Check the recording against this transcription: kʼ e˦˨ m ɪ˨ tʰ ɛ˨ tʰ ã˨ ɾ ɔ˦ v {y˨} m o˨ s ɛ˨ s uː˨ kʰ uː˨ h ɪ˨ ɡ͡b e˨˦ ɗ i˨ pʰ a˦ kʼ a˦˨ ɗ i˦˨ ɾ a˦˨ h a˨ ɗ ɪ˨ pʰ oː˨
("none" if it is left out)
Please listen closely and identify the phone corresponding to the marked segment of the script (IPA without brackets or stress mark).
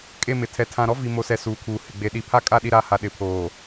i˨